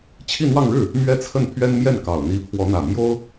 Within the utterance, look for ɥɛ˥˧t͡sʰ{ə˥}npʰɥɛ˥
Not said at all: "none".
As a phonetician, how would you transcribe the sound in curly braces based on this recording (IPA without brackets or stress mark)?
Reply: ə˥˩